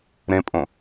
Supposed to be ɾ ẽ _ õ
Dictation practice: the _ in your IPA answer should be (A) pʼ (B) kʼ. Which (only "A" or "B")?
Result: A